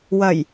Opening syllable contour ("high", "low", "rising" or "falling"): low